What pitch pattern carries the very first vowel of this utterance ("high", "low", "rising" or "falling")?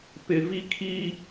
low